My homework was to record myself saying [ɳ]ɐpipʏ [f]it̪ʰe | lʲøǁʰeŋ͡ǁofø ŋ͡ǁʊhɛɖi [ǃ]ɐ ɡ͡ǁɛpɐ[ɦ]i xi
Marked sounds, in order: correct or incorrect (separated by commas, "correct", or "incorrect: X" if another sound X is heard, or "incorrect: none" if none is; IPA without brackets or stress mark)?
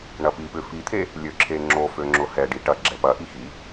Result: correct, correct, incorrect: ʈ, incorrect: ʔ